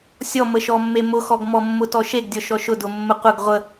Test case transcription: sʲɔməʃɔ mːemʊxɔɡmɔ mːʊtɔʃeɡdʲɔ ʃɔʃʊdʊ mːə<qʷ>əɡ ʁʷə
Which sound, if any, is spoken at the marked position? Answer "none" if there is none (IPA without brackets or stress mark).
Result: qʷ